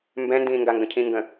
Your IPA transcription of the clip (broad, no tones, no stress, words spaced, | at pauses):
mbɛ̃ndĩː ŋɡaŋɡə̃cʰĩː ŋɡə̃